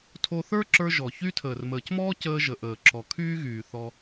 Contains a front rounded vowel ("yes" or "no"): yes